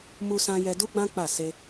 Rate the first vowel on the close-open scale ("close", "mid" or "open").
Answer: close